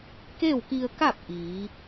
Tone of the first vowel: falling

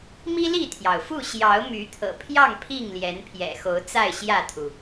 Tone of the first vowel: high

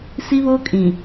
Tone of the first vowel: high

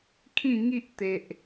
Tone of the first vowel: falling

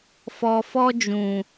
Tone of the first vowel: low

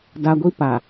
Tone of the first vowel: high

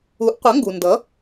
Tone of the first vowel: rising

